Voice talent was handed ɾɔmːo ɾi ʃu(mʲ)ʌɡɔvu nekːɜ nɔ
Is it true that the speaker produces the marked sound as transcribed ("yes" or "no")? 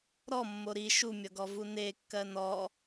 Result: yes